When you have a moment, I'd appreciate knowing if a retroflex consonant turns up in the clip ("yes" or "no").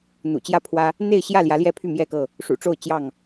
yes